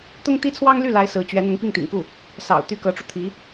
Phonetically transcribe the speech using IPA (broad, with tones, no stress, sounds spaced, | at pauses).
t̪ ʊ˥ ŋ t̪ i˥ t͡sʰ w ɑ˥ ŋ l y˥˩ l a˥ ɪ̯ s ɹ̩˧˥ t͡ɕ ɥ ɛ˧˥ n̪ ʊ˧˥ ŋ p i˥˩ ŋ t̪ ḭ˨˩ ŋ k u˥˩ | s ɑ̰˨˩ ʊ̯ t̪ y˥ k ɤ˧˥ ʈ͡ʂ u˧ t̪ʰ i˧˥